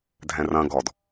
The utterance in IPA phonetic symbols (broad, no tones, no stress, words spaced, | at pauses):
dʱɛ̃rɐ̃ ɡɔd